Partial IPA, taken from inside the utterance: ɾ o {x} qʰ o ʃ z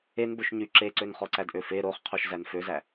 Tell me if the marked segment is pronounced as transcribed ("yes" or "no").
no